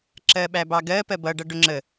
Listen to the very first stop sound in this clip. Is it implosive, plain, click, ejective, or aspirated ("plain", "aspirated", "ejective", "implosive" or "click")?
click